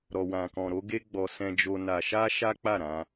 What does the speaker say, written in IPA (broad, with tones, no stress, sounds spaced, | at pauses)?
ɾ ɔ˧ w ã˧ k ɔ̃˧ ɾ o˦ ɡ e˦ ɡ͡b ɔ˧ s ɛ̃˧ d͡ʒ o˧ n a˧ ʃ a˦ ʃ a˦ k͡p a˦˨ ɾ ã˧